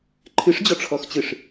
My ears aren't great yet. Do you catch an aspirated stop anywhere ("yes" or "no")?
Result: yes